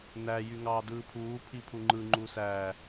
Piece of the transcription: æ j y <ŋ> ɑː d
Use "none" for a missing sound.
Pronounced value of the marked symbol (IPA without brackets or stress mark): ŋ